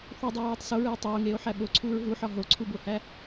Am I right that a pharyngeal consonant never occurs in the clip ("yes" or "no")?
no